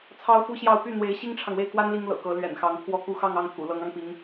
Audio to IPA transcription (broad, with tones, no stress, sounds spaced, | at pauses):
t͡sʰ ɑ˥ ʊ̯ f u˥ ɕ j ɑ˥˧ ʊ̯ p y˥˩ n̪ w e˧˥ ɪ̯ ɕ i˥ ŋ ʈ͡ʂʰ ɑ˨ ŋ w e˥˩ ɪ̯ k w a˥ n l i˥ ŋ l ɤ̰˨˩ k ɤ˧˥ l ɥ ɛ̰˨˩ n x ɑ˧˥ ŋ pʰ w ɔ˥˧ k u˥˧ x ɑ˥˧ ŋ ɑ˥˩ ŋ t̪ʰ ṵ˨˩ l ɤ˧˥ ŋ ɑ˧ ŋ p i˧˥ ŋ